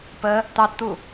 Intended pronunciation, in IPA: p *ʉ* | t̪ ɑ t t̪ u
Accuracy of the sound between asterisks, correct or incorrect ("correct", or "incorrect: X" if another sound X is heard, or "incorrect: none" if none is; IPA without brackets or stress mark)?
incorrect: ə